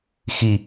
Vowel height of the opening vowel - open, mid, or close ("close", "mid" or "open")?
close